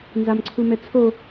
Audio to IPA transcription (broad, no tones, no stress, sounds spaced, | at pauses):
n z a m ǀʰ u m ɛ t͡sʰ o